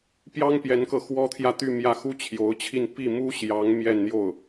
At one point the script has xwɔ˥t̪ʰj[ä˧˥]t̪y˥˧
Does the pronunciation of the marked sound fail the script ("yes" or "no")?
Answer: yes